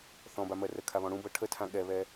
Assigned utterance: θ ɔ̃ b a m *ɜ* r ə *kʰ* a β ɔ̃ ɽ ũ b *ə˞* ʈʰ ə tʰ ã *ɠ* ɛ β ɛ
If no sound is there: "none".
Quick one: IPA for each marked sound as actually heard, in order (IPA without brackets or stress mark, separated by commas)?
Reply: ɜ, kʰ, ɤ, ɠ